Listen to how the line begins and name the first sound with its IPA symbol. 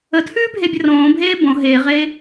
ə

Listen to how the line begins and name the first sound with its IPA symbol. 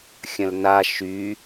xʲ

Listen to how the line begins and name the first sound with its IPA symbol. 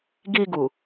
ɡ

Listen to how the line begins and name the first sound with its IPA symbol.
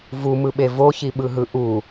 v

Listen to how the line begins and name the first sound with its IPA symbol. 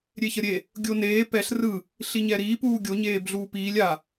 ɾʲ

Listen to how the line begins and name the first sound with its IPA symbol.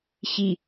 ɕ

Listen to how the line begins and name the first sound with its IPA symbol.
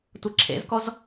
tʷ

